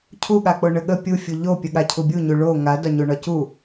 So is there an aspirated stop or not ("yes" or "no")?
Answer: yes